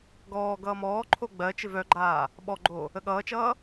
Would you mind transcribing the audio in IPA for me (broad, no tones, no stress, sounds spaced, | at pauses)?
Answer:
ɡ ɔː ɡ ʌː m ɔː ǃʰ o ɡ͡b ɜ t͡ʃ ɪ v œ ɡ͡ǃ aː | ɓ ɔ ɡ͡ǃ o | ə ɠ ʌː t͡ʃ ʌː